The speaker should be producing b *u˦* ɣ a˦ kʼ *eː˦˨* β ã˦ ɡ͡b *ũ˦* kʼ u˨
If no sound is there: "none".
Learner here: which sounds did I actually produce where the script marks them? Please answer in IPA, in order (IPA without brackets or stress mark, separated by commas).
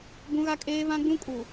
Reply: ũ˦, eː˦, ũ˦